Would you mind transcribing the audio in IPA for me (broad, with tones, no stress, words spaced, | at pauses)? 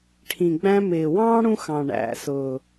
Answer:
ʈʰĩ˨ɡ͡bæ̃˦ mɪː˨wɑ̃ː˥ɽũ˦xɑ̃˨ ɳæ̰˨sʊ˨